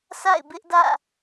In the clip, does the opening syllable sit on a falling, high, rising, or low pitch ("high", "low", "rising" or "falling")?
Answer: falling